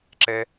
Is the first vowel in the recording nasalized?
no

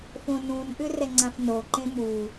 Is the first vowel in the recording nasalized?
yes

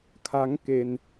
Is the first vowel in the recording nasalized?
no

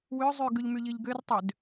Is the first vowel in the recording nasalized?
no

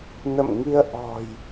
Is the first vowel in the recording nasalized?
no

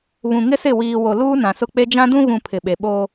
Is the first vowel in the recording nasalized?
yes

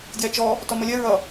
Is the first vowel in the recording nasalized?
no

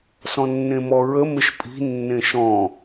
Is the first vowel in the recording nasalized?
yes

